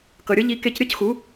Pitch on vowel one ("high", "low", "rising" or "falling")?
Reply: low